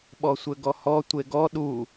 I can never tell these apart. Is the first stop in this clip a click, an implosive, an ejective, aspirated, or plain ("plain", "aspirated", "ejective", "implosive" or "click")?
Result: implosive